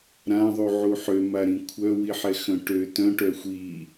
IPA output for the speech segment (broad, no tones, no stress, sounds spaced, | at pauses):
ɾ ã ðˤ u ʕ u ħ ø m a ɾ ĩ kʷʰ œ w i ħ ɛ x œ̃ ʈ ø t œ̃ ʈ œ xʷ i